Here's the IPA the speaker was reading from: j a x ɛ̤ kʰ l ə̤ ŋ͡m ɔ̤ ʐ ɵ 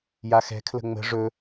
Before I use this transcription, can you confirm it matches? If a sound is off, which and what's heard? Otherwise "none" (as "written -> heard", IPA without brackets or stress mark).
ɔ̤ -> ə̤